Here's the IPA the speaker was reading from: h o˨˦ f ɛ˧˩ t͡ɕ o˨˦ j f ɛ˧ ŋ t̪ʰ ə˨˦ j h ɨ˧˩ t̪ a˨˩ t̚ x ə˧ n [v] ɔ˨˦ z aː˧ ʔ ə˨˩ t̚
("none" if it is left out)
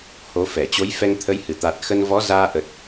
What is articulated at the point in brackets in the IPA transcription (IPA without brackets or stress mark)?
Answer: v